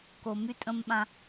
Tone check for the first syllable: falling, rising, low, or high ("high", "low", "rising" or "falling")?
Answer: low